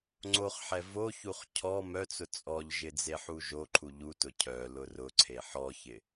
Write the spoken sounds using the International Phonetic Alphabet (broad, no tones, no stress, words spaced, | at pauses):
ŋ͡ǀoχħɛ voçuχ cʰɔ mœt͡sʊ t͡sʼɔʎʒɪ d͡zeħuʒoǃʰu ʎutʊ cʰœ lʊrʊǀʰe ħɔçɪ